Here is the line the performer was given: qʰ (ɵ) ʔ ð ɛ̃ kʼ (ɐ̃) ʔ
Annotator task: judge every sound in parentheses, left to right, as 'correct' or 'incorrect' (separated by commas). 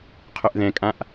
correct, incorrect